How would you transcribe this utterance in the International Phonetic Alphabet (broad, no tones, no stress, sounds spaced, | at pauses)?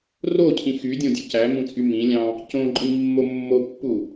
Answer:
r o cʰ ĩ x y dʲ õ dʲ u c æ m ũ t͡sʼ y m ĩ lʲ ɑ̃ | c õ ǃʼ ĩ mː o mː o pː u